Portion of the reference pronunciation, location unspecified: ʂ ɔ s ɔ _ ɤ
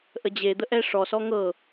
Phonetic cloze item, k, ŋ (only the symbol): ŋ